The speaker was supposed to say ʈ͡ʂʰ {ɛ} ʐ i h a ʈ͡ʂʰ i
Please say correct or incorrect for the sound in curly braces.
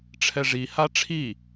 correct